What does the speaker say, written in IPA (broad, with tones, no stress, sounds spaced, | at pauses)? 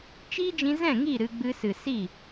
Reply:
t͡ʃ iː˦ d͡ʒ ĩ˧ z ɛ̃˦˨ ŋ i˦˨ ɾ ɨ˧ ɡ͡b ɨ˧ s ɨ˨ s i˦˨